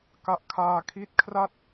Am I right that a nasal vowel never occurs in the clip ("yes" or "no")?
yes